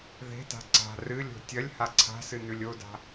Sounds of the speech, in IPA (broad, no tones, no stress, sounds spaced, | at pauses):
ð e̤ t a̤ ǀ a̤ r ɨ lʲ o̤ tʲ ɐ lʲ h a ǀʰ a̤ s ɨ n ʉ lʲ o d a̤